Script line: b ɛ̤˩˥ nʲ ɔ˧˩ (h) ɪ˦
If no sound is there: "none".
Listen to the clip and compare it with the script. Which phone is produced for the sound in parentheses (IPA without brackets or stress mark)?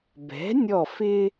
f